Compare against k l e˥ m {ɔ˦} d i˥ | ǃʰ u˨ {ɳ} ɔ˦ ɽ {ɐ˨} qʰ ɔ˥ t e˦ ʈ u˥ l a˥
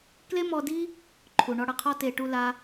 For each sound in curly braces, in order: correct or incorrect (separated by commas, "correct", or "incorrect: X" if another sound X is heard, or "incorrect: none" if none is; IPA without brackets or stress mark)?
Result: correct, correct, incorrect: ɐ˦